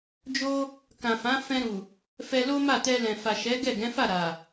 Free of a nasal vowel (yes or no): no